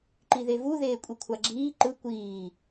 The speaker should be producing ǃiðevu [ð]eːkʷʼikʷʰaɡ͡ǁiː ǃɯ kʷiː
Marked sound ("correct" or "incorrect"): correct